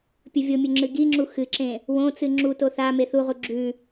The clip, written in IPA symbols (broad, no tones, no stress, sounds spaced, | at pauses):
pʲ ɵ vʲ o mʲ ɵ ŋ͡ǁ ɨ ɡ i ŋ͡ǁ u x ɨ ǁ ẽ | w õ t͡s ɨ ŋ͡ǁ u t o θ a m e θ u ʁ u ɡ͡ǁ ʉ